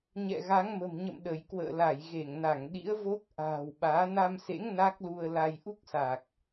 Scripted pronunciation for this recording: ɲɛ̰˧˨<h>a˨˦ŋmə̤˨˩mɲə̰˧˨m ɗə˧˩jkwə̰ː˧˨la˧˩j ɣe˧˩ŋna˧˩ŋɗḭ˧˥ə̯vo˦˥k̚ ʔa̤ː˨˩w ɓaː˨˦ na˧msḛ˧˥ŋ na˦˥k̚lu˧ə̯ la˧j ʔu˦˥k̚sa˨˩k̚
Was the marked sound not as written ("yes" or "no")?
yes